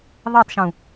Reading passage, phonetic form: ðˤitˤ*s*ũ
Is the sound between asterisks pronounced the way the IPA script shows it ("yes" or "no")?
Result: no